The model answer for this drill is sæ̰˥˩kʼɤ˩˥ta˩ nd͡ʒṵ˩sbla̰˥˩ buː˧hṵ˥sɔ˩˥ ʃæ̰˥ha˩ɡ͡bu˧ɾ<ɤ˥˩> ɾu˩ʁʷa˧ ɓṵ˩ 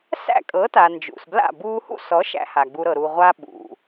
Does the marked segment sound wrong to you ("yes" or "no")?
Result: yes